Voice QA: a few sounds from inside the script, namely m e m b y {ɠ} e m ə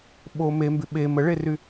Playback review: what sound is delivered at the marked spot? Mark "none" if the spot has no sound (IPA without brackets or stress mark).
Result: ɓ